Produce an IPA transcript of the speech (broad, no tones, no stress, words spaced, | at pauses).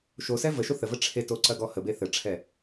ʃosɛ vəʃo θəvə ʈ͡ʂʰeto ǀɐɡɔhəbe θəʈ͡ʂʰɛ